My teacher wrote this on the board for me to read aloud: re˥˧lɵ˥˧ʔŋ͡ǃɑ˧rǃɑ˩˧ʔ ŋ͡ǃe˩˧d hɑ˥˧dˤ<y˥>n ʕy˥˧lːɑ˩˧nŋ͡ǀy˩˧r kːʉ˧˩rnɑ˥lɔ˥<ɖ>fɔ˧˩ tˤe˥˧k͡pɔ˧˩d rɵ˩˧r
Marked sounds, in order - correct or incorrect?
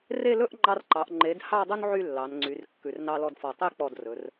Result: incorrect: u˥, incorrect: d

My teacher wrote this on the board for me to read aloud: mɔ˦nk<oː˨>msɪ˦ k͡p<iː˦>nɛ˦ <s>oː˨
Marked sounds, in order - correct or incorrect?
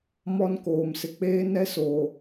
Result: correct, incorrect: eː˦, correct

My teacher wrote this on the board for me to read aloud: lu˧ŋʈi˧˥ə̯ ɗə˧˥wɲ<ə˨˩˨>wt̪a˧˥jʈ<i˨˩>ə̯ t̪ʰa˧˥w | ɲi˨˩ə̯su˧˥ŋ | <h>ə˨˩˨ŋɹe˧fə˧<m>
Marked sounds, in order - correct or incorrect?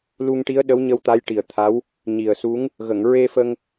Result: incorrect: ə˧, correct, incorrect: ɣ, incorrect: ŋ

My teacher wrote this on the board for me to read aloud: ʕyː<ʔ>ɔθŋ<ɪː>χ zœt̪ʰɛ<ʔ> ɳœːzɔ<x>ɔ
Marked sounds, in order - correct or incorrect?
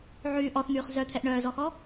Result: correct, incorrect: yː, correct, correct

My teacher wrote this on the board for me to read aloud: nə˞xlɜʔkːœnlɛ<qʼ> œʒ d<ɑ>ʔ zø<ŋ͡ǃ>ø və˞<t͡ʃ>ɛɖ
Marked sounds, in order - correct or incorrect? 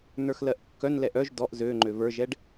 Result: incorrect: ʔ, incorrect: ɔ, correct, incorrect: ʒ

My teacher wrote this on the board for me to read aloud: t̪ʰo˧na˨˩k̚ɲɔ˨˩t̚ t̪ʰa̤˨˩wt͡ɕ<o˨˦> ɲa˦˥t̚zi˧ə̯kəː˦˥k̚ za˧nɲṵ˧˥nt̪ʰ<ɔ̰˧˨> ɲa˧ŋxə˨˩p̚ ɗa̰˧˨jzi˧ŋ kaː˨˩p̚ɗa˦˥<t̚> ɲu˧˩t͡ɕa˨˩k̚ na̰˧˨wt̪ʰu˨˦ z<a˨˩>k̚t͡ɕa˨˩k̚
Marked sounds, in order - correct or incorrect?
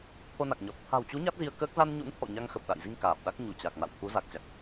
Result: incorrect: u˨˦, correct, incorrect: k̚, correct

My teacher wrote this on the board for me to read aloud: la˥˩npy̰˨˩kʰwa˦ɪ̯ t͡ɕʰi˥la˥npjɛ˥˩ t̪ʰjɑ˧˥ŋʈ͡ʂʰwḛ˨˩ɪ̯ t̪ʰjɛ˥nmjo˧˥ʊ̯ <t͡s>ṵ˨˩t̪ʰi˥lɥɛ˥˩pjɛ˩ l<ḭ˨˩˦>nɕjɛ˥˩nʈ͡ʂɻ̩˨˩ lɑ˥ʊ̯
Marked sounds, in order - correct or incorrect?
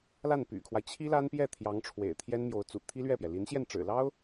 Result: correct, incorrect: i˧˥

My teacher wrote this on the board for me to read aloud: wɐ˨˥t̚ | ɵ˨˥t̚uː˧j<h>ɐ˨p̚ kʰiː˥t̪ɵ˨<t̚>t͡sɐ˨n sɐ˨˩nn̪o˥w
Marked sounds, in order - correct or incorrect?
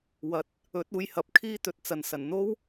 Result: correct, correct

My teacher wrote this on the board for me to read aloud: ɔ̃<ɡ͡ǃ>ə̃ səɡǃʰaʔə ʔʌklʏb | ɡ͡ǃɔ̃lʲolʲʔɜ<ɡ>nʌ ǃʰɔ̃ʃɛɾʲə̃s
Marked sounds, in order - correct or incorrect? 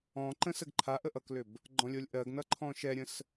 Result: incorrect: ǃ, correct

